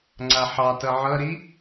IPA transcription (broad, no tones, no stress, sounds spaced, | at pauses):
ŋ͡ǀ a ħ ɑ t ʌ ʕ ʌ ɾ i